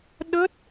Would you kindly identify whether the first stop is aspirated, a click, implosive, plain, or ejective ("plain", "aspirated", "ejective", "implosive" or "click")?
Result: implosive